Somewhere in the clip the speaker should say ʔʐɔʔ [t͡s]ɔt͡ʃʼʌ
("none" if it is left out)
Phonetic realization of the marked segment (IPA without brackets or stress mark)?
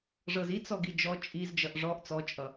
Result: t͡s